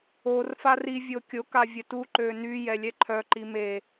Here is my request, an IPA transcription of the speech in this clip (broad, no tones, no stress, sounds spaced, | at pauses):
o r f a r i vʲ o kʲ o k a vʲ ə t u ǃ ø n y j ɛ lʲ ɛ ǃʰ œ ǃ i m e